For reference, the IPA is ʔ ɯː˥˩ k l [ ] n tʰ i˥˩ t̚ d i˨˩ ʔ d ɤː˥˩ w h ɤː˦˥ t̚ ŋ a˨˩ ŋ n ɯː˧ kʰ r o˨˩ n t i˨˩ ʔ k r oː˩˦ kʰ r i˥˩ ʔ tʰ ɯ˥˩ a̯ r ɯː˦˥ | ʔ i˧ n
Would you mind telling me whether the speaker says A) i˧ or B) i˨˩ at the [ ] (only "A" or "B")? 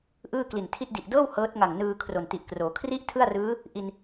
B